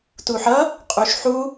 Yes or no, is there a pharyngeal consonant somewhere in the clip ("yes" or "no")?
yes